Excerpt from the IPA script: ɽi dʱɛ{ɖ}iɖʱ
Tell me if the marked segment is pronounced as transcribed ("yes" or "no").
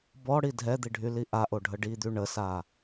no